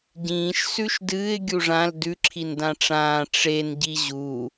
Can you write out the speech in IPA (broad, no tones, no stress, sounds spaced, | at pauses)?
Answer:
ɟ ĩː ʃ s ʉ ʃ d ɨː ɪ̯ ɡʲ u ʐ ã l d ʉ ǁʰ i n d ã ʈ͡ʂ ãː ʈ͡ʂ e n ɟ i ʑ u